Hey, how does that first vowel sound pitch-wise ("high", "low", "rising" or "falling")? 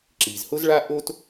low